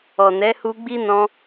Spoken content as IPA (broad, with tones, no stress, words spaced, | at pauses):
ɔ˨nɛ˨˦hu˧ɡ͡bi˦ nɔ̃˧